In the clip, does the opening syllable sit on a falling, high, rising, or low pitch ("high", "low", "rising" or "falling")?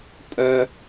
high